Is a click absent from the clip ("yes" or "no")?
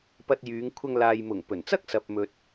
yes